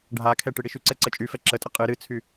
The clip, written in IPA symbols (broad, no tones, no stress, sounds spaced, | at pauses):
ɖʱ a kʰ ɛ ʈ ɨ ɽ i ʃ ʉ ǀ ɛ ǀ ə t͡ʃʼ y f ɛ ǁ ə tʼ ə qʼ ɨ ɾ ɨ t͡sʰ y